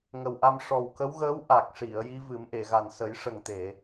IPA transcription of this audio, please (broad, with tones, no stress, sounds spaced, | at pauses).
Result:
ŋ ə˨˩ w ʔ a˧ m ʂ ɔ˨˩ w k ə˧˥ w ɣ əː˧˥ w ʔ a˨˩ k̚ ʂ i˨˩˨ ə̯ j i˧˥ v ɨ˨˩˦ m ʔ e˨˩˨ ɣ a˨˩ n s ə˨˩˦ j ʂ ə˨˩ ŋ t̪ e˨˩˨